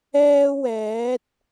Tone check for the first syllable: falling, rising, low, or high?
high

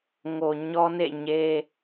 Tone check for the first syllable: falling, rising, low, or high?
low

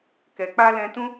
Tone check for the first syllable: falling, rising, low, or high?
low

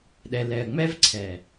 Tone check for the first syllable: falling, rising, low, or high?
low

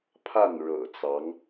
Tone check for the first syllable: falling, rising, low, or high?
falling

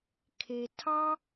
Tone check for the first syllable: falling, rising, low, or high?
low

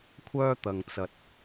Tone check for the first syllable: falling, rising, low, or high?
high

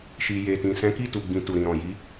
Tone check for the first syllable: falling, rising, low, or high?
low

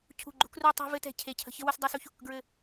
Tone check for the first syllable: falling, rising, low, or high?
falling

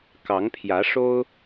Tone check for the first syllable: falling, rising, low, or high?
rising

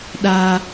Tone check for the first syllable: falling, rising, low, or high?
high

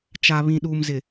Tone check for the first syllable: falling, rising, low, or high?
low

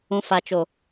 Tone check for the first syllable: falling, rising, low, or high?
low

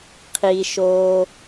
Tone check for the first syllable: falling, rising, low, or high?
low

